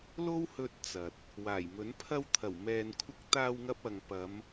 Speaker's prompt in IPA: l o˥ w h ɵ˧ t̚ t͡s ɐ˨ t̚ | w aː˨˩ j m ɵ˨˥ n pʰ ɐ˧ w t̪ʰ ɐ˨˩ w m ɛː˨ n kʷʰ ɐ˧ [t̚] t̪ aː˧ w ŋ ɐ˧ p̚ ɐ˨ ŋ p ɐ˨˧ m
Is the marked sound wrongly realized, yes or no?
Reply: yes